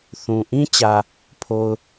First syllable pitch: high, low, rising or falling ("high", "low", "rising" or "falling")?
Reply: low